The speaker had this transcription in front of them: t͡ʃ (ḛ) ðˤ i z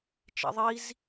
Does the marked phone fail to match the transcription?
no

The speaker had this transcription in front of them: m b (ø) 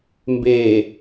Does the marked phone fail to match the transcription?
yes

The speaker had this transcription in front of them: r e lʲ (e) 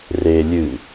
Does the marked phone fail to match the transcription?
yes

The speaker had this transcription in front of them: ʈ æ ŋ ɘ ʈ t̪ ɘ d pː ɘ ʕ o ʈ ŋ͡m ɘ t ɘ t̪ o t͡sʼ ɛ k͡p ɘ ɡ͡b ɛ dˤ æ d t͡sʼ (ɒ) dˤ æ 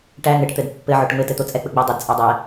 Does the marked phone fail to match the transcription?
yes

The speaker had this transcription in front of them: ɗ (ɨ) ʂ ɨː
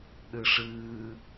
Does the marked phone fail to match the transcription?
no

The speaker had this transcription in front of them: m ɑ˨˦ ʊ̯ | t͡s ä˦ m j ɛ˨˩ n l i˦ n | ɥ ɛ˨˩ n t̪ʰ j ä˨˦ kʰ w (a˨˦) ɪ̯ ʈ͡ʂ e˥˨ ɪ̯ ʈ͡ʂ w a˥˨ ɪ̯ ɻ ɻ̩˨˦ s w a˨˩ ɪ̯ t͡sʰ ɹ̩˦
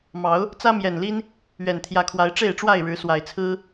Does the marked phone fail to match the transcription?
no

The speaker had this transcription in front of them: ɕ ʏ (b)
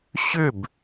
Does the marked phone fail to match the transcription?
no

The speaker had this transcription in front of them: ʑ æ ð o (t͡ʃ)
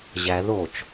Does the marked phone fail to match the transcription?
no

